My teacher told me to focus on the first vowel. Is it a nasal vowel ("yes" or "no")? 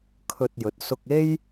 no